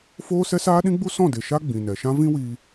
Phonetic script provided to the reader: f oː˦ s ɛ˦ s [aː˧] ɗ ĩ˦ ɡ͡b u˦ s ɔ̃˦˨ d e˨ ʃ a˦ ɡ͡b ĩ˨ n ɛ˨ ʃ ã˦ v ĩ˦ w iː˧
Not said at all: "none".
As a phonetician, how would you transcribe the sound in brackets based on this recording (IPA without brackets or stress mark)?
aː˦